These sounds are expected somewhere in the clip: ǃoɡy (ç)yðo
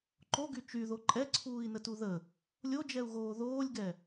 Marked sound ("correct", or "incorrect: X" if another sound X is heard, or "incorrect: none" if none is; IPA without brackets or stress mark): incorrect: t͡ʃ